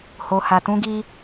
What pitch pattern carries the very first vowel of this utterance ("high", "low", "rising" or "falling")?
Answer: low